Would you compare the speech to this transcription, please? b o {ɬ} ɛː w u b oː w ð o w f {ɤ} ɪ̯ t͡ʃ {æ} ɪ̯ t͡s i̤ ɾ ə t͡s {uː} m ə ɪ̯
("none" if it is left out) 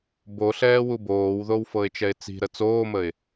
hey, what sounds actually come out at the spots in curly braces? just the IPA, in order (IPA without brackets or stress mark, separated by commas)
ɬ, ɤ, ɛ, oː